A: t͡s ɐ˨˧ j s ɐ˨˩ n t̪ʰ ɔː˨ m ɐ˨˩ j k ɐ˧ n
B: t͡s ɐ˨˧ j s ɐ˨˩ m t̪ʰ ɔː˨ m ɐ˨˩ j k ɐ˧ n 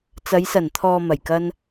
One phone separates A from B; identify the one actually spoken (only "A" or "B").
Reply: A